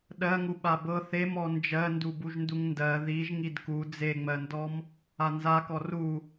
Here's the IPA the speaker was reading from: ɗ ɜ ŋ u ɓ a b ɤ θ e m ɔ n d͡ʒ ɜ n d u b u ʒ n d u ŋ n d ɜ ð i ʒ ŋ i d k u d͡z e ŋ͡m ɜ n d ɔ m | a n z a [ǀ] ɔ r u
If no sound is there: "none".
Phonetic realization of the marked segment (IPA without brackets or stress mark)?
k